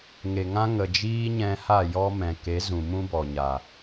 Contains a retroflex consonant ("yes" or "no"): no